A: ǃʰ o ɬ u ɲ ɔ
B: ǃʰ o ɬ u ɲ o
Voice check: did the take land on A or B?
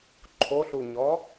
A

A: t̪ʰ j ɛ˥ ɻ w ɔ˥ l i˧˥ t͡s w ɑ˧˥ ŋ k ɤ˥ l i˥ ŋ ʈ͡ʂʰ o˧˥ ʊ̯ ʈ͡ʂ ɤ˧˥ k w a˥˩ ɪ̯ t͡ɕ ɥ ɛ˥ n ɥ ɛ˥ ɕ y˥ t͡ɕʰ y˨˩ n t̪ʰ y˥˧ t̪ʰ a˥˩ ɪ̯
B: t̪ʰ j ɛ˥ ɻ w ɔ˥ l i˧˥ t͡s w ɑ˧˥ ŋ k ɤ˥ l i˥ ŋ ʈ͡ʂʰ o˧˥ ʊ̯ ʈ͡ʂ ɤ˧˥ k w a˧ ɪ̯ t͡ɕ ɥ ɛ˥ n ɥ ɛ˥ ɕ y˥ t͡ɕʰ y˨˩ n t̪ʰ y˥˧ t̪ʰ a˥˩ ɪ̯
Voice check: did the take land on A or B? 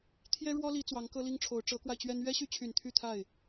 B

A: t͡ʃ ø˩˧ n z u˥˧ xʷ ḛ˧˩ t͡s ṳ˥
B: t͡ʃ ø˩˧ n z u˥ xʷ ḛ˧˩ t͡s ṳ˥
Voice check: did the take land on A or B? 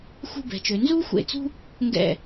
B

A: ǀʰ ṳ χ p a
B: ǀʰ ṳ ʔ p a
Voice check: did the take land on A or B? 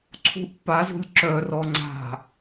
B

